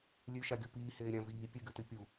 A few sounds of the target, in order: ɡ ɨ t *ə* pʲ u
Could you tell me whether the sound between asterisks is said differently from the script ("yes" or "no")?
yes